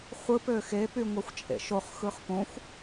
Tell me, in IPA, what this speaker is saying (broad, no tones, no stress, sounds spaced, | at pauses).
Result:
χʷ ɯ p ø x e p y ŋʷ e xʷ t͡ʃʼ ḛ ʃ o χ x ɯ χ p õ xʷ